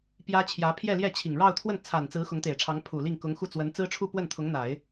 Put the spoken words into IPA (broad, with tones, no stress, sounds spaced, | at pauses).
p j ä˥ t͡ɕʰ j ä˧˥ pʰ j ɛ˥˧ l j ɛ˥˩ t͡ɕʰ i˨˩ ŋ ɻ ɑ˥˧ ʊ̯ t̪ʰ w ə˥˩ n t͡sʰ a˨˩ n t͡s ɹ̩˧˥ x ʊ˧˥ ŋ t̪ e˨˩ ɪ̯ ʈ͡ʂʰ ɑ˧˥ ŋ pʰ u˨˩ l i˥˩ ŋ k ʊ˧˥ ŋ x u˥˩ t͡s w ə˧˥ n t͡s ɹ̩˥ ʈ͡ʂʰ u˥˧ p w ə˥˩ n t̪ʰ ʊ˧˥ ŋ n̪ a˨˩˦ ɪ̯